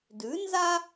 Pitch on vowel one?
rising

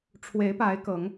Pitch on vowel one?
rising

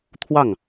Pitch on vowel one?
falling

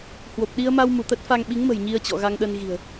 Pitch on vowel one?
low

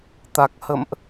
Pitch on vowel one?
low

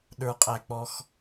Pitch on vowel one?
low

